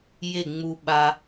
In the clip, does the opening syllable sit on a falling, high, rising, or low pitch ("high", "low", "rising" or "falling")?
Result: falling